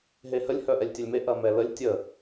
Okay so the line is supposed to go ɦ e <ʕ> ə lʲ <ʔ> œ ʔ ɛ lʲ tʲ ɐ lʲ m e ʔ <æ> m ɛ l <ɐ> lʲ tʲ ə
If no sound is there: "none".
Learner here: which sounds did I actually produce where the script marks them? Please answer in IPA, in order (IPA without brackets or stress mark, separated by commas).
h, h, ɐ, ə